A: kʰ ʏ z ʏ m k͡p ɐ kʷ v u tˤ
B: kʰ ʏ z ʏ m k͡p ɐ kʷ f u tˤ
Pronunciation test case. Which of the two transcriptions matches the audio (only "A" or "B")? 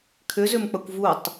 A